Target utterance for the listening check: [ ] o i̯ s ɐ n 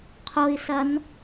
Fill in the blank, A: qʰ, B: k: A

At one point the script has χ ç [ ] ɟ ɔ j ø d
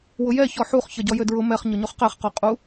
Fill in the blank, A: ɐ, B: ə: A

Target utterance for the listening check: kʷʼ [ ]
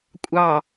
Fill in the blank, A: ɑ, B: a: A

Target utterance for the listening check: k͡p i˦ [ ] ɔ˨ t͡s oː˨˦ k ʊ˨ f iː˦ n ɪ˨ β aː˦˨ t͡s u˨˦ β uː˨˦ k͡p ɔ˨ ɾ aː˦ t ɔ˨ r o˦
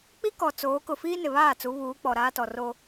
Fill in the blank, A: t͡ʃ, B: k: B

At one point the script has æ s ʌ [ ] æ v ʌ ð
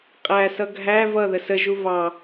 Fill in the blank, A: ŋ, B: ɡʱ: B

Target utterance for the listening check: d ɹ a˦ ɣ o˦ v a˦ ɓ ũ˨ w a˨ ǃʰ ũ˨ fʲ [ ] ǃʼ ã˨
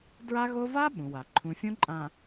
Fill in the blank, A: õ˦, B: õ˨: A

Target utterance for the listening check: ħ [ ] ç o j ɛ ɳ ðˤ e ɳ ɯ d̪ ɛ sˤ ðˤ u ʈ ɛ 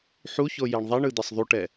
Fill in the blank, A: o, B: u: B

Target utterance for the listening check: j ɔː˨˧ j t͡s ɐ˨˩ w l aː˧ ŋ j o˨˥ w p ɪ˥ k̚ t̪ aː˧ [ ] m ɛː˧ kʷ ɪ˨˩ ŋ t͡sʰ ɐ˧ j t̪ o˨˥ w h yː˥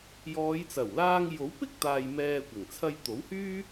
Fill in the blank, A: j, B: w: A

